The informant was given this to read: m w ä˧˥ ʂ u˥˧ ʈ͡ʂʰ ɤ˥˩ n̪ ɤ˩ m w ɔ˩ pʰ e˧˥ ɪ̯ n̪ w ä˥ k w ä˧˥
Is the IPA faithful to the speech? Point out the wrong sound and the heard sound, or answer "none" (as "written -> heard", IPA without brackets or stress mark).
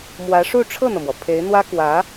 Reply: none